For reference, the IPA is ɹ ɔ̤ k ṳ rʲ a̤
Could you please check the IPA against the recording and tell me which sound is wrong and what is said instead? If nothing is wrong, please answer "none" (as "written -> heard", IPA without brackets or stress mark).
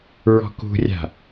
none